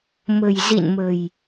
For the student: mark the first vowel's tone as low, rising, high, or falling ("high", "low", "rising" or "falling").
low